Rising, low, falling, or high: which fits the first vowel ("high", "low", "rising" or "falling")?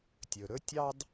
low